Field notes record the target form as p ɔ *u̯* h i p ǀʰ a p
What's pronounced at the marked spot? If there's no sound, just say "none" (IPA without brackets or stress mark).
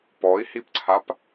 i̯